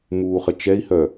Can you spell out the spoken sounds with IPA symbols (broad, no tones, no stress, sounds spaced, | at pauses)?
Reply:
m uː χ ɘ t͡ʃ ɛ i̯ h œ